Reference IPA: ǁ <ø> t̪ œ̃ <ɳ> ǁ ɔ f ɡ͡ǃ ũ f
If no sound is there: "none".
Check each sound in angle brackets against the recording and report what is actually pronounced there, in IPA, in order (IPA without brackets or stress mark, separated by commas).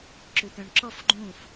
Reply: ø, ɳ